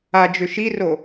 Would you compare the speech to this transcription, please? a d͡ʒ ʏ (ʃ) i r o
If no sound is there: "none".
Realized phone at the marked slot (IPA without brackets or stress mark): ʃ